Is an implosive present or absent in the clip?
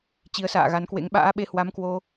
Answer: present